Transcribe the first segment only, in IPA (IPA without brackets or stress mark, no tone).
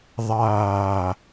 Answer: ðˤ